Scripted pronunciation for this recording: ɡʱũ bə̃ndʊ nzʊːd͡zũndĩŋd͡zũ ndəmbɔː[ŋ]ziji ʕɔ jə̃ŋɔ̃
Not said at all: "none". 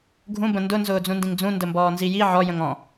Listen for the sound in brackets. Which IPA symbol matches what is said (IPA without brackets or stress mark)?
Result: n